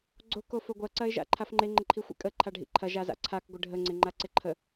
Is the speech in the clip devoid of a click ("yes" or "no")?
no